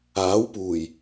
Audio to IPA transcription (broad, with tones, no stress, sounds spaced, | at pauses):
aː˨˥ w p uː˨˩ j